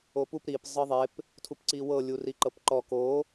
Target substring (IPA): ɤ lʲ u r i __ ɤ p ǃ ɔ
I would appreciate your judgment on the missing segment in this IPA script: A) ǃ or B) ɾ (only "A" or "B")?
A